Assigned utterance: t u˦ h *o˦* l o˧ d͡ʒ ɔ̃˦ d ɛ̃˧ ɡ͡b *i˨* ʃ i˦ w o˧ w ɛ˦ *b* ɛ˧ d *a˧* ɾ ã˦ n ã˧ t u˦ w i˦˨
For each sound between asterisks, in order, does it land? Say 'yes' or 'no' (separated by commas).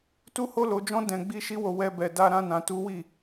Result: yes, no, yes, no